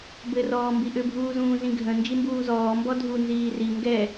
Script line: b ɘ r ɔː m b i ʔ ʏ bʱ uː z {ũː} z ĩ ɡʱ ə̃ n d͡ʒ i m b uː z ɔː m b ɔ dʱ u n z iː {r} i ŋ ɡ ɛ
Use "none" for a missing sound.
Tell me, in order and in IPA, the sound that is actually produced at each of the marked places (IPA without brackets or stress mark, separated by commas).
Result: ũː, r